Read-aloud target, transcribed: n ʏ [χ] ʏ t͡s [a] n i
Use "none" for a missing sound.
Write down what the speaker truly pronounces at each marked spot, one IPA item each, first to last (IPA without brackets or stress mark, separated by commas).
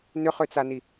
χ, a